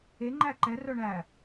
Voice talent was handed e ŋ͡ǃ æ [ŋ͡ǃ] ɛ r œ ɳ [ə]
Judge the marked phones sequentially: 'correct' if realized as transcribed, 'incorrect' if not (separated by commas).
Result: incorrect, incorrect